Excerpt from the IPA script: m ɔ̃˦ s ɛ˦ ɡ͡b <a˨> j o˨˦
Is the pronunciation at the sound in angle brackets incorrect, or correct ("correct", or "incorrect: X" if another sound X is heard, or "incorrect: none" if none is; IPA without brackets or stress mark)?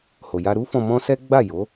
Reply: incorrect: a˦˨